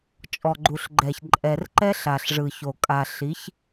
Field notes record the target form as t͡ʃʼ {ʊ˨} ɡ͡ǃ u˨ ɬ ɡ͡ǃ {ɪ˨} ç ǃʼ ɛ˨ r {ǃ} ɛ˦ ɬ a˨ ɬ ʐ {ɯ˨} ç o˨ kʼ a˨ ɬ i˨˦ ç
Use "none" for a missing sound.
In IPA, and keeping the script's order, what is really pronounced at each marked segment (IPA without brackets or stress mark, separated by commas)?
ɔ˨, ɛ˨, ǃ, ɯ˨